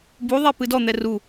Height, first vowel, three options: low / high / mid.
high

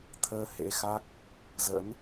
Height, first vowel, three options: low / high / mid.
mid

